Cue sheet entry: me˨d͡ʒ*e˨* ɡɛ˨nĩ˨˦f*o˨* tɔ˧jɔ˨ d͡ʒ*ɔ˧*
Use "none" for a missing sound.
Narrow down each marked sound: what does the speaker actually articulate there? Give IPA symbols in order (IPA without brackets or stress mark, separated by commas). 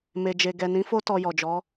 e˨, o˦, ɔ˨˦